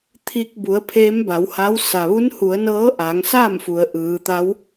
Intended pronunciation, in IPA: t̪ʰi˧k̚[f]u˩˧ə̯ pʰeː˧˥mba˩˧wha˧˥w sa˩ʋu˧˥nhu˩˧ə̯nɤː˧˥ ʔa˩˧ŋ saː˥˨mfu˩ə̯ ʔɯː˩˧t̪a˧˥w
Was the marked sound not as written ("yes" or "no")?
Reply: yes